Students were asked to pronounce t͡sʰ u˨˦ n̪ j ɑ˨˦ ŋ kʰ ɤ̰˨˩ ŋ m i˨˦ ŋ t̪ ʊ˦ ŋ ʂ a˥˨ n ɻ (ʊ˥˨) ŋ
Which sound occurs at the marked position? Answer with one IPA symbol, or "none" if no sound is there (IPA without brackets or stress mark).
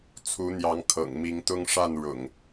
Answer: ʊ̰˨˩